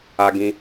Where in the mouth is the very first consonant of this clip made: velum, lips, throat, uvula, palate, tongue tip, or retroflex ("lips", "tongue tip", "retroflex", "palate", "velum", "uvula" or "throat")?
velum